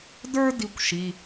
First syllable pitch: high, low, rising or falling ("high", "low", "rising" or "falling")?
high